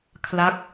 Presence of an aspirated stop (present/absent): present